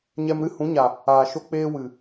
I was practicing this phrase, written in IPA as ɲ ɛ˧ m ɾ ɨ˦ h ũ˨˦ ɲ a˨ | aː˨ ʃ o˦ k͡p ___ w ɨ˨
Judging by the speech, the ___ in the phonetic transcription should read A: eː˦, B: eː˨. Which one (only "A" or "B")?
A